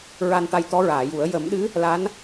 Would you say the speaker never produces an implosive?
no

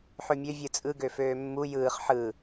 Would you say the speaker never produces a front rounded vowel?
no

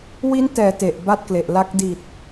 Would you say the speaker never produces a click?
yes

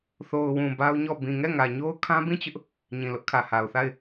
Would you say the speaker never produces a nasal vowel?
no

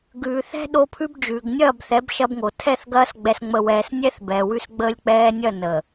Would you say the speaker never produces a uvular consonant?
yes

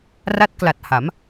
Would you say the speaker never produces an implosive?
yes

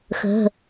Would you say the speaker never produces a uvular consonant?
yes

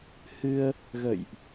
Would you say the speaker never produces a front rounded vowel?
yes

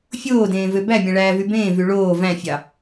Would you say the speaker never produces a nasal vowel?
no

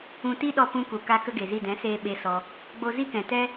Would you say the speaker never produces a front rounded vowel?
yes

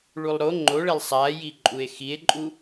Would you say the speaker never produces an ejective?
no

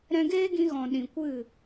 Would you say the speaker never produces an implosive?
no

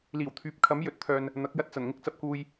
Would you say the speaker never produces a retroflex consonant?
yes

